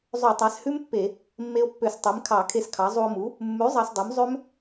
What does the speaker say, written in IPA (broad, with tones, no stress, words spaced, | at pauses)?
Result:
zˤø˧˩˧tˤæ˩˥shʉ˦˥mpːe˧˩˧ | mːe˧o̯pːø˧˩˧s tˤe˩˥mkʰɑ˧˩˧kʰe˧skʰɑ˩˥ zˤu˧o̯mu˩˥ | mːʉ˩˥ zˤɑ˧sdˤu˩˥mzˤø˦˥m